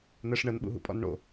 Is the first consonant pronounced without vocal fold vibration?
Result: no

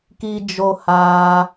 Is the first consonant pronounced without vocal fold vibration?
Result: yes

